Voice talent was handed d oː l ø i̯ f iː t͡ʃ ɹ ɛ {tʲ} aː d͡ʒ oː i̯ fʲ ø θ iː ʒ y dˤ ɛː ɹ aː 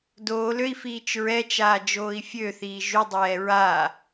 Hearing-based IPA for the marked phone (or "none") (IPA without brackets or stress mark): t͡ʃ